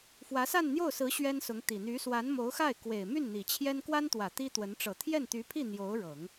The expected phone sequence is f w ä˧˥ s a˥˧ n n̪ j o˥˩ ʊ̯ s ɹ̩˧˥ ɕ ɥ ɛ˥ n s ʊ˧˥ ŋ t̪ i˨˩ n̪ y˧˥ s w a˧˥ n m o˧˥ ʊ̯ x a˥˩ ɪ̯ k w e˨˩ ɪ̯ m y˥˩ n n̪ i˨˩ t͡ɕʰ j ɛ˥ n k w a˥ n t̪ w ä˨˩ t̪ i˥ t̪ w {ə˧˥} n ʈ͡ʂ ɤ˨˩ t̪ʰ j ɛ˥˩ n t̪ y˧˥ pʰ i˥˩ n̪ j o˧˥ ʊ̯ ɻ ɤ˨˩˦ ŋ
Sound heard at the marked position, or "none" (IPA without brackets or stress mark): ə˧˥